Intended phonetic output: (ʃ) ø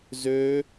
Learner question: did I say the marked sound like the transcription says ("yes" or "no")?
no